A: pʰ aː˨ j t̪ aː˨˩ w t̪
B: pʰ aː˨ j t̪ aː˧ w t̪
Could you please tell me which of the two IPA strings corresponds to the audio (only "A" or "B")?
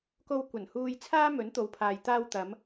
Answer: B